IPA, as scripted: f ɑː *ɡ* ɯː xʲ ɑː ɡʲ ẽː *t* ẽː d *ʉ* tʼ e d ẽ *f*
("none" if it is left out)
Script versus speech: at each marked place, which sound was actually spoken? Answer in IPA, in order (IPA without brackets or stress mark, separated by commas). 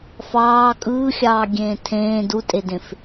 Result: kʼ, tʰ, u, f